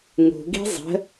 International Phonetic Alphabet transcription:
ŋ ṳ ɡ i̤ zˤ ə̤

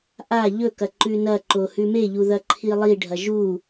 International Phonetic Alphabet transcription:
ʔ a ʎ ɵ k ɐ ǃ ʉ n ɐ ǃ o h ʉ m e ʎ u ð ɐ ǃʰ i lˠ i ɖʱ ɐ ʒ u

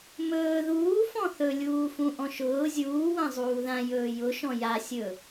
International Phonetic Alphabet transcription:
m ɵː ð uː f ɔ̃ θ ɵ lʲ uː f ũ ʔ ɔ̃ ʃ ʊː zʲ uː w ã zˤ uː ð ã j ɵː j ʊ ʃ ɔ̃ j a sʲ ɵ

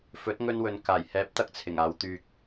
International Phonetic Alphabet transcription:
f ɵ˨˥ t̚ ŋ ɵ˧ n w ɵ˨ n k aː˨˩ j h ɛː˨˥ p̚ t̪ ɐ˧ k̚ t͡sʰ ɪ˨˩ ŋ aː˨˧ w t̪ yː˧ k̚

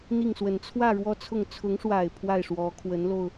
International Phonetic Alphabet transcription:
n̪ i˥˩ ŋ s w ə˨˩ n t͡sʰ w ä˥˧ ɻ w ɔ˥˧ t͡sʰ ʊ˥˩ ŋ t͡sʰ ʊ˧˥ ŋ ʂ w a˨˩ ɪ̯ pʰ w a˥˩ ɪ̯ ʂ w ɔ˧˥ kʰ w ə˧˥ n l o˧ ʊ̯

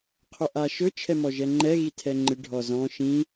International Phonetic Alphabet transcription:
qʰ ɵ ʔ a ʃ ɵ t͡ʃʰ ɛ m ɔ ʒ ɛ ŋ͡ǃ ɛ ɣ i tʰ ɛ ŋ͡ǃ ɪ ɖʱ ɔ z ɔ̃ ʃ ĩ

